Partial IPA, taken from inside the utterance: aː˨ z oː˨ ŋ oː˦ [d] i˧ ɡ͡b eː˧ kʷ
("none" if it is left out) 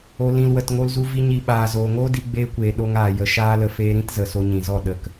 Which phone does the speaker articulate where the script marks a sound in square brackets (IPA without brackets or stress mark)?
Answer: d